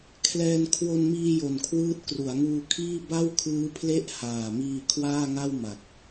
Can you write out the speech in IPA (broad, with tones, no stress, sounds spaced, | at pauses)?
kʰ l ɛː˧ n kʰ w o˧ n m iː˧ j o˨˩ n kʰ w ɯː˥˩ t̚ k r u˩˦ a̯ ŋ uː˧ kʰ iː˥˩ b a˥˩ w kʰ ɯː˦˥ pʰ l e˥˩ ʔ h aː˨˩ m iː˧ kʰ w aː˥˩ ŋ a˥˩ w m a˨˩ k̚